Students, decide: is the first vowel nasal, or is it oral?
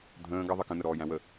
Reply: nasal